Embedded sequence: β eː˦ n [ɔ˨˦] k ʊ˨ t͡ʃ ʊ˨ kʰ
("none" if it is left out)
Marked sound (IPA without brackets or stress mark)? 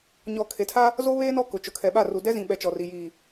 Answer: ɔ˦˨